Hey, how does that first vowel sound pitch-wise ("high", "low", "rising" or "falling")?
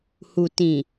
low